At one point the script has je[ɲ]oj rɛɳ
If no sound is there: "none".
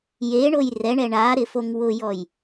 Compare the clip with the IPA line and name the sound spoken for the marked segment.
ɳ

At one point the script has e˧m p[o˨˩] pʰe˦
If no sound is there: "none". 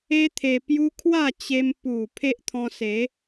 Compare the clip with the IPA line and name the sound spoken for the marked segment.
u˨˩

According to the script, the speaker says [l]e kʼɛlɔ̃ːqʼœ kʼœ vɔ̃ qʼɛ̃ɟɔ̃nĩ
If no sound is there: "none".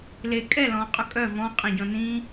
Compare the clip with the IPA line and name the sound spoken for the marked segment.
l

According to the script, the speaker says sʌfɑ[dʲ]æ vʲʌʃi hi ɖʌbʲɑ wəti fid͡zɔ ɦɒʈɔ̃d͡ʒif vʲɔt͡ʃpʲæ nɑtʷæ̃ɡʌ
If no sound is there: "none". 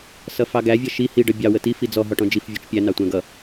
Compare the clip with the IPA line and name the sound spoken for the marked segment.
ɡ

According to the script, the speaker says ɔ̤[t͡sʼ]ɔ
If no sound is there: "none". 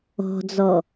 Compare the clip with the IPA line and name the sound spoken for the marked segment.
d͡z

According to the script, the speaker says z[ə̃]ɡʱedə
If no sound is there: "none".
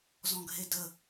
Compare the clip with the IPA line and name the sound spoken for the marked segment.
ɔ̃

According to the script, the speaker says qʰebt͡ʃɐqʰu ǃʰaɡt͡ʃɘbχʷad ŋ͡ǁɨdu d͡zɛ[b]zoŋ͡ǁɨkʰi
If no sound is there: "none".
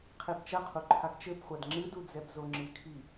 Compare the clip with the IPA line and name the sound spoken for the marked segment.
b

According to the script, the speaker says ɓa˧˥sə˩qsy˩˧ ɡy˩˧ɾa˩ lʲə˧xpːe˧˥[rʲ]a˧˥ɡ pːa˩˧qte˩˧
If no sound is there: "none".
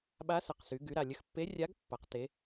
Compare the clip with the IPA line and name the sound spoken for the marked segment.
rʲ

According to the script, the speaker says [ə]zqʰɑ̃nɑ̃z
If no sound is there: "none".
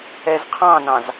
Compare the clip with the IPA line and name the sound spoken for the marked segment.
ɛ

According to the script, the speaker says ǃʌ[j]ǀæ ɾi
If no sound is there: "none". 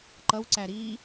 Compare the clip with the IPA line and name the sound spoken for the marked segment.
w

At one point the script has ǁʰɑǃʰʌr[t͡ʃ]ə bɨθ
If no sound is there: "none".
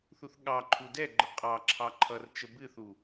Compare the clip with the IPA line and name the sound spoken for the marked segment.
t͡ʃ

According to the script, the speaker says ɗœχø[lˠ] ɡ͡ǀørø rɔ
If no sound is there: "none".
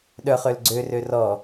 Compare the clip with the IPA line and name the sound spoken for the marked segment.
l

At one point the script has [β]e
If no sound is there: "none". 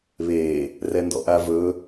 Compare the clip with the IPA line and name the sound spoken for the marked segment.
β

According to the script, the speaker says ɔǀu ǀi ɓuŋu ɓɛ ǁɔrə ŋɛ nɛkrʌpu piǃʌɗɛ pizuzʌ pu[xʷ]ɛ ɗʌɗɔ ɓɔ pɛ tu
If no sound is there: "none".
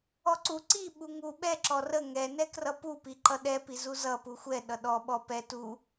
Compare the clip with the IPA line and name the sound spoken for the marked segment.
xʷ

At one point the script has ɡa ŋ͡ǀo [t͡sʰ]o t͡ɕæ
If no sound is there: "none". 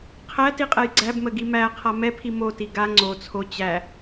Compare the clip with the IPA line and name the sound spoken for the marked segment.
t͡sʰ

